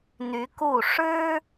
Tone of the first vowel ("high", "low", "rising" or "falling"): rising